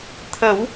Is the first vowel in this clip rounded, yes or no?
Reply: no